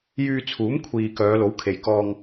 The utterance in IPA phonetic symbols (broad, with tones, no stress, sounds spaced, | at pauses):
j yː˧ t͡sʰ uː˨˥ m kʷʰ iː˧ k œː˨˧ l o˨˥ w kʰ e˨ j k ɔː˧ ŋ